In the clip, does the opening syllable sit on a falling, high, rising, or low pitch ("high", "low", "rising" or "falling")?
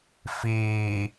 low